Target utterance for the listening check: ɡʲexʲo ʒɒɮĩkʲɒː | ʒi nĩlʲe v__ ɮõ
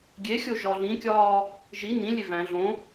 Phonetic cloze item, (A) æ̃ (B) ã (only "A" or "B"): A